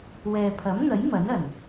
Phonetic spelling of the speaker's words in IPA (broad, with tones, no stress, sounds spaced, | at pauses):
w ɛː˨ pʰ ɐ˨˥ m n̪ ɐ˨˥ j m ɐ˨˥ n ɐ˨˩ n